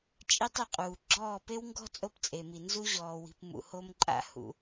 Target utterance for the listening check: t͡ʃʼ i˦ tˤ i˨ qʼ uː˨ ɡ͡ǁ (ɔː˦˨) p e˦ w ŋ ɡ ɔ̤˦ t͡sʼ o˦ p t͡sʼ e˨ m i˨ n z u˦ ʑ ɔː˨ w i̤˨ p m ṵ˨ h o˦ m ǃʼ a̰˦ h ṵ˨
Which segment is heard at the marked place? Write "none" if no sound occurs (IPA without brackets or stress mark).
ɔː˦˨